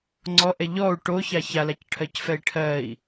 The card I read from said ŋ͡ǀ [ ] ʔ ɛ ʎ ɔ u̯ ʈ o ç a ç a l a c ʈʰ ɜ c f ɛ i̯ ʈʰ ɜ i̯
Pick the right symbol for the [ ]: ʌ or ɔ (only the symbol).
ɔ